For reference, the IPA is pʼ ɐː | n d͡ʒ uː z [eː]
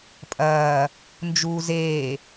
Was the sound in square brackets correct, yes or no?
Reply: yes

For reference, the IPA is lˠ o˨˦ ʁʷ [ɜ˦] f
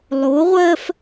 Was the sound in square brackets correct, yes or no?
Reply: yes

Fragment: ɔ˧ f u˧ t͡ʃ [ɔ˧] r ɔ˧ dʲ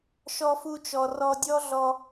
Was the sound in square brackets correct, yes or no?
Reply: no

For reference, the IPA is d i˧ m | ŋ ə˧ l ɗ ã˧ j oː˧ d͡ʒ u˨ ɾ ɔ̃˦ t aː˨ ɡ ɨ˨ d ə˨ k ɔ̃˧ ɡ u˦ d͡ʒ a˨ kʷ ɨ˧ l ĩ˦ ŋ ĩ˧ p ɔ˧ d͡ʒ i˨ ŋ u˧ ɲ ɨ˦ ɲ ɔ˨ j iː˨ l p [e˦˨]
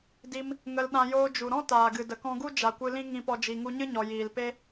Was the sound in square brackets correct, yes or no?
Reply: no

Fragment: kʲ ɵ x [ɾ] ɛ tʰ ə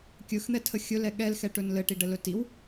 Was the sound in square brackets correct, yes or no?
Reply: no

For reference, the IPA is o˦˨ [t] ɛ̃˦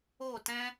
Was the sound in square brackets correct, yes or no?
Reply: yes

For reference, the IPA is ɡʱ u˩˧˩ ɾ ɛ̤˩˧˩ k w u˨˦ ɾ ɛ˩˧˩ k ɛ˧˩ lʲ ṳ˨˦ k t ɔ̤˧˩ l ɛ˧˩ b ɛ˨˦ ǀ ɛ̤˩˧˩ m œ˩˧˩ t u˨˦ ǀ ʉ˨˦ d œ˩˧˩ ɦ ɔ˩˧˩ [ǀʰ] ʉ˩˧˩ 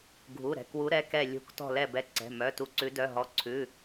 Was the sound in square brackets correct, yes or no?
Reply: yes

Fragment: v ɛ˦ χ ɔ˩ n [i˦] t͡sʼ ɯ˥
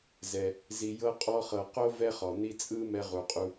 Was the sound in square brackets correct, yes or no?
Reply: yes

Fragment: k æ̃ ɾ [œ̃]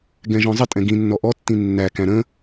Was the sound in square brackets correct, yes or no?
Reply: no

